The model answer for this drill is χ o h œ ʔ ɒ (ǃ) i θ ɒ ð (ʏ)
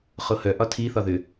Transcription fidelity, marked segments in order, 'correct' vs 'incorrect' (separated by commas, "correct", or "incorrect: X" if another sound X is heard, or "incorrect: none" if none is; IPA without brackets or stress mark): incorrect: tʰ, correct